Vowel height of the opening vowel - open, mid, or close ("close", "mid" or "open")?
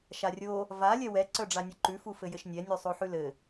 open